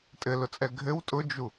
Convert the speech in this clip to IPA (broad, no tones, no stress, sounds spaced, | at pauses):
tʼ ɘ l ʊ t͡sʼ ɛ ɡʱ ɘ w tʼ ʊ d͡ʒ u